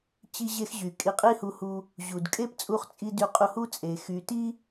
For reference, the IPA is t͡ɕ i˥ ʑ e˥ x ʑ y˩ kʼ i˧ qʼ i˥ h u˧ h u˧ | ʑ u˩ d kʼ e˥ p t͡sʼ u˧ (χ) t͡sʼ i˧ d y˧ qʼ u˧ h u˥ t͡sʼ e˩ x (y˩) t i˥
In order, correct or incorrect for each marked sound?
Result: correct, correct

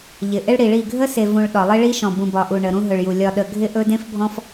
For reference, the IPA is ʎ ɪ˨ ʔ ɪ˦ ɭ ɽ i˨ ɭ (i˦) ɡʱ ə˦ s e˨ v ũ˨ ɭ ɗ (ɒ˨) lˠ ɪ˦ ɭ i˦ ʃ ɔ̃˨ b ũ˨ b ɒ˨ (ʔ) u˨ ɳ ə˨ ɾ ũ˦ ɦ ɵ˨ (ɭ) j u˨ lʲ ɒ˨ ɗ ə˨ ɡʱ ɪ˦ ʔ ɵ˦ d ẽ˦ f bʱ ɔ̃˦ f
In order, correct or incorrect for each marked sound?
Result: incorrect, correct, correct, correct

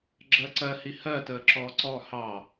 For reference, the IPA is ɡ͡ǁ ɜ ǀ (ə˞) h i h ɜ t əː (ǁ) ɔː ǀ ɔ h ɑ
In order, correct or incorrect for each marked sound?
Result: incorrect, correct

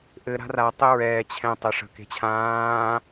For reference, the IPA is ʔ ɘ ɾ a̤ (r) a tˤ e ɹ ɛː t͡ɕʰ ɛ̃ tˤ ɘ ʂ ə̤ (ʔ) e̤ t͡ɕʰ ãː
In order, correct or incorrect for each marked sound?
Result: correct, incorrect

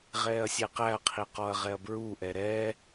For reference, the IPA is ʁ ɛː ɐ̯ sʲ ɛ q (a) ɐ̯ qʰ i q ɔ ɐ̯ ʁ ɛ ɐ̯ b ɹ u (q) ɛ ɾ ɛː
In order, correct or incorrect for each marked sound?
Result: incorrect, incorrect

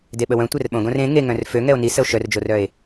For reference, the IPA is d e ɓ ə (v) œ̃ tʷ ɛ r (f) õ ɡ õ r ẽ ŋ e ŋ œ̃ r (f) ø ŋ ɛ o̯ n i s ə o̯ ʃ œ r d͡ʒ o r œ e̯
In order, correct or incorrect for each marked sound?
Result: incorrect, incorrect, correct

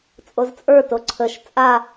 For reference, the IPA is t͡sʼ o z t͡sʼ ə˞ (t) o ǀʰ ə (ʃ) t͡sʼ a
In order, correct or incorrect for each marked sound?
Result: correct, correct

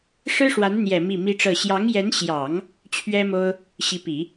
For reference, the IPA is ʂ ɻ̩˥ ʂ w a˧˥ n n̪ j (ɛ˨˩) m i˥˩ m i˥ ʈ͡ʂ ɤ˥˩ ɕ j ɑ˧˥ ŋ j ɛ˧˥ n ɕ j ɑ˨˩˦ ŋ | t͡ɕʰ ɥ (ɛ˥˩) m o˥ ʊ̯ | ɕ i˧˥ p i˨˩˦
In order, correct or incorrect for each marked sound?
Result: correct, incorrect

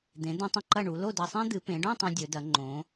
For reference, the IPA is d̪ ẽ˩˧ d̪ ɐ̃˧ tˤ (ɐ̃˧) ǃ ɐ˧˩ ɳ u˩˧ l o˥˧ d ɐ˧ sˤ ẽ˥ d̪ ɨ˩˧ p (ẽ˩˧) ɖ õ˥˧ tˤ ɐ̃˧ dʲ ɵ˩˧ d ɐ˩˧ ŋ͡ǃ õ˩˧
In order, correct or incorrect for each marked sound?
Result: correct, correct

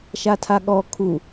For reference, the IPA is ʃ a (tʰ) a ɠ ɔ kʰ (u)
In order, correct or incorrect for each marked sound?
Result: correct, correct

